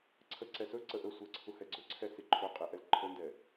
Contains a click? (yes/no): yes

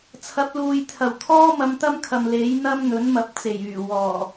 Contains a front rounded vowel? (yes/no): yes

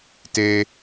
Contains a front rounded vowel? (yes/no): no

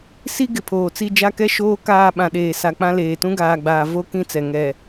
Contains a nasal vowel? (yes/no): yes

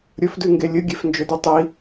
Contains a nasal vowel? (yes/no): no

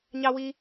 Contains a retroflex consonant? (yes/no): no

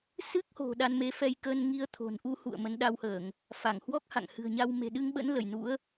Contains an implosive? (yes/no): yes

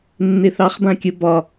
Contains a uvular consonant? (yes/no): yes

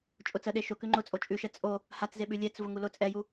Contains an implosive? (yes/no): yes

